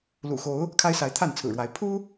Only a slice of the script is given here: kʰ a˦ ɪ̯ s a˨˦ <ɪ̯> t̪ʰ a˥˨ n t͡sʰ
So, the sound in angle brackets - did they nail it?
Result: yes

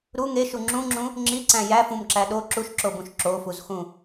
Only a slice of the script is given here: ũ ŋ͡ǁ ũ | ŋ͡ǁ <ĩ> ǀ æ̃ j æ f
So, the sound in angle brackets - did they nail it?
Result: no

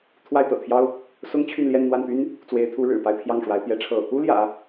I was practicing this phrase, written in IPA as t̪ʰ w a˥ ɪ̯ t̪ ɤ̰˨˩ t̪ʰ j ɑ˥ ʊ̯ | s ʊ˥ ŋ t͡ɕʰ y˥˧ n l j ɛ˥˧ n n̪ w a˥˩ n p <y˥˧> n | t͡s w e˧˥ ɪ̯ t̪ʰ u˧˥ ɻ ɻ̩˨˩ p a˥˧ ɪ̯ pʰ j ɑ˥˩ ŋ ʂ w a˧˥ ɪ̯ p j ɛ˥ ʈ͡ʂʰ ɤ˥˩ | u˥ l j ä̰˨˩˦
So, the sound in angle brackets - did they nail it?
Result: no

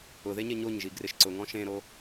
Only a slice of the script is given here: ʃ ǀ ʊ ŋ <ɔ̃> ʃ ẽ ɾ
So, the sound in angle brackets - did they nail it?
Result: yes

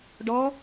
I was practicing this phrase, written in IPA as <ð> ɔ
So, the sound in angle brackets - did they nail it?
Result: no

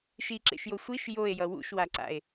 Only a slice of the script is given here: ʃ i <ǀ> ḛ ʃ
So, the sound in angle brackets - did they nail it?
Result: no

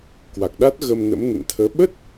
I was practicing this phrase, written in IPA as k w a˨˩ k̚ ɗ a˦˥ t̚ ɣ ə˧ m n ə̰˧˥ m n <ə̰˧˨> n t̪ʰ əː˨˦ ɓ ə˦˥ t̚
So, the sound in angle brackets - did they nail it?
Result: yes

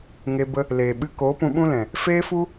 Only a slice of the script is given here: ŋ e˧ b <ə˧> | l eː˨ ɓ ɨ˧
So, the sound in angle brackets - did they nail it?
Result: yes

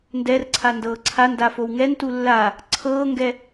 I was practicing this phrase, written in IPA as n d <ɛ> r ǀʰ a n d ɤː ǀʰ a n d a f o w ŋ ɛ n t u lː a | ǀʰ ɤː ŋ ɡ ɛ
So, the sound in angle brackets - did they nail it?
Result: yes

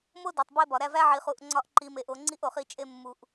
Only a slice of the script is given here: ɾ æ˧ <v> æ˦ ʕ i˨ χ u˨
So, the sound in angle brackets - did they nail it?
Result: yes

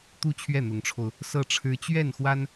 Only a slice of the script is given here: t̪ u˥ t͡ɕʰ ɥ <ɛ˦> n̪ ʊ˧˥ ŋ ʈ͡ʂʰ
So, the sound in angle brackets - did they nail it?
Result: no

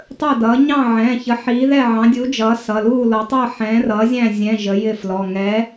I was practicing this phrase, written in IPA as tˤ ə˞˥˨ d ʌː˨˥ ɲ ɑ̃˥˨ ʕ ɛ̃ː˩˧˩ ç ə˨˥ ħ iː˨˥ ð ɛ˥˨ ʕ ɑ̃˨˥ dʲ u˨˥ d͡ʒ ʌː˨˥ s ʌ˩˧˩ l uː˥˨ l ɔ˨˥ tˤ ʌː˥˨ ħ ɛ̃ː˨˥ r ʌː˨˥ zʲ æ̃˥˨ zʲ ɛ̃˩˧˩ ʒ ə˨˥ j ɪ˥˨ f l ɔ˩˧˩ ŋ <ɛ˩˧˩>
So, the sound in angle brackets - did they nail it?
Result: no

